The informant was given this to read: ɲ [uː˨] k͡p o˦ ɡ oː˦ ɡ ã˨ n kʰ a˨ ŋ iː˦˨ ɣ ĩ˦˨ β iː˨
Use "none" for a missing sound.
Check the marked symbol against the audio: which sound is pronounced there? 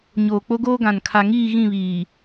oː˨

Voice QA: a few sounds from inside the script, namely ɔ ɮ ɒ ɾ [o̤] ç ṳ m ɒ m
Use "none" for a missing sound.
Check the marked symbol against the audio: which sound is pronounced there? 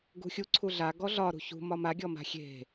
ṳ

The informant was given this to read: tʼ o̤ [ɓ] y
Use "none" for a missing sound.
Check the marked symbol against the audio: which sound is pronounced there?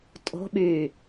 ɓ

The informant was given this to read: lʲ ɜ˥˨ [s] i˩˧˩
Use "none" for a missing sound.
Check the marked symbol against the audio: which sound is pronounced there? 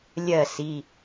s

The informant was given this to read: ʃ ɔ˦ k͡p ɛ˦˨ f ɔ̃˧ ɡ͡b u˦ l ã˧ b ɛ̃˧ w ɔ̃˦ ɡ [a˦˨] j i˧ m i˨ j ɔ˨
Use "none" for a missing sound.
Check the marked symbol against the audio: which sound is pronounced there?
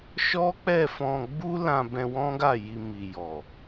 a˦˨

